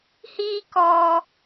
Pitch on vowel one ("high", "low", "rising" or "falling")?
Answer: high